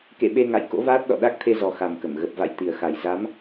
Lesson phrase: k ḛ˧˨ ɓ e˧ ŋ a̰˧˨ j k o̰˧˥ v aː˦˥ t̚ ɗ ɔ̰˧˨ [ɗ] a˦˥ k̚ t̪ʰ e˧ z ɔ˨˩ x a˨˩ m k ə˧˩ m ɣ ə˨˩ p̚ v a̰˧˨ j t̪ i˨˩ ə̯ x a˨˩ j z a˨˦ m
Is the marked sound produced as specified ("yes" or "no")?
yes